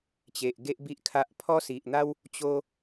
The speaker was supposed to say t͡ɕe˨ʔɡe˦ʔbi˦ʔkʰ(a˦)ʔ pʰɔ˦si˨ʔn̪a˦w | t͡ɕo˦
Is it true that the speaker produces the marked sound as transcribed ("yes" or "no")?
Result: yes